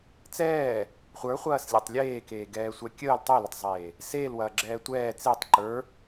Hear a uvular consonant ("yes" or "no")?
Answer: yes